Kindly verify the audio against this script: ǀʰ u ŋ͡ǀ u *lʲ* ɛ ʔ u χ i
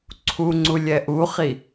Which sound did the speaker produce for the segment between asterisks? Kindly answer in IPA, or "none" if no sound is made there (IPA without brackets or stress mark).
lʲ